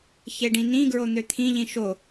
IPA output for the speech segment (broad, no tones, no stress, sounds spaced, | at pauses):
ç e ɖ ĩ n ĩ ɡ ɹ o n̪ ø t̪ʰ ĩ ʎ ĩ ʃ o